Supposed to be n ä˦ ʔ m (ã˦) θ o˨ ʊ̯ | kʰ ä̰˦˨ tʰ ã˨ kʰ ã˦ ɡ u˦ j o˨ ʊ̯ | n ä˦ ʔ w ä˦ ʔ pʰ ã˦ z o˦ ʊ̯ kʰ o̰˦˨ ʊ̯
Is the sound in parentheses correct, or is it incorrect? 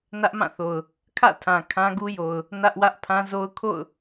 incorrect